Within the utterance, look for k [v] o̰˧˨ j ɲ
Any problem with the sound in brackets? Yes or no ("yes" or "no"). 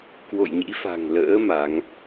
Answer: yes